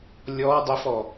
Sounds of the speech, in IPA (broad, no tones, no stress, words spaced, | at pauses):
lʲɔ dˤəfɔ